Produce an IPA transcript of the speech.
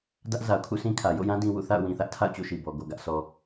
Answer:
d ä˦ ʔ z a˨ ʊ̯ kʰ ṵ˦˨ s ĩ˦ kʰ ä˨ j o̰˦˨ j ã˦ d ĩ˦ w ṵ˦˨ θ a̰˦˨ ʊ̯ w ĩ˨ θ ä˦ ʔ tʰ a̰˦˨ ʊ̯ t͡ɕ o̰˦˨ ʃ i˨ b ɔ˨ ɡ o˨ ɡ ä˦ ʔ sʰ ɔ˦

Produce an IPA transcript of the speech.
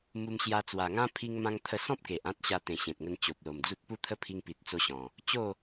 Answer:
m u˧ m ɕ j a˧ t͡s w a˨˩ ŋ ã˦ pʰ i˧ ŋ m ã˧ ŋ t̪ʰ ə˧ s ɔ̃˦ p̚ k e˨ ʔ ã˦ t̚ ɕ a˧ t̪ ẽ˨˩ ɕ ẽ˨ t̚ ŋ ə˧ n t͡ɕ o˨ p̚ l o˨˩ m d͡z u˦ t̚ p u˦ t̪ʰ ə˦ pʰ i˧ ŋ p i˨ t̚ t͡s o˧ ɕ ɔ̃˨˩ | t͡ɕ o˥˧

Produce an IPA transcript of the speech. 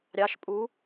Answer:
ɾʲ ɑ ʃ pʼ u

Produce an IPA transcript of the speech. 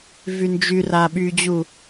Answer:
v y n d͡ʒ y r a ɓ y d͡ʑ u

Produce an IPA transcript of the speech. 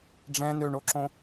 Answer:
ɖ͡ʐ ɛ̃ n ø ɳ o ǁ õ

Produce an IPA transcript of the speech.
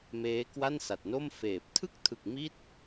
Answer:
m eː˦˥ k w a˥˩ n s a˨˩ t̚ n o˥˩ m f eː˨˩ p̚ tʰ ɯ˥˩ k̚ tʰ ɯ˨˩ k̚ m i˥˩ t̚

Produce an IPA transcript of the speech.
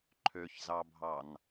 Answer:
ǃʰ ø ç z ɑ bʱ ɑ n

